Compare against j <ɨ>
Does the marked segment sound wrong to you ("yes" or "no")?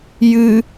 no